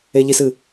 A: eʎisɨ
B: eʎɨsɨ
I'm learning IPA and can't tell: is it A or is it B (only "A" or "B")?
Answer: A